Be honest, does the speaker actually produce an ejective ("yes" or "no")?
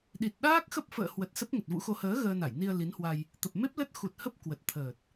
no